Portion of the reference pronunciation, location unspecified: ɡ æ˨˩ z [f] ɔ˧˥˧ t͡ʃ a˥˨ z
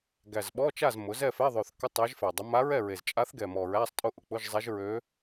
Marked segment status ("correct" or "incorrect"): incorrect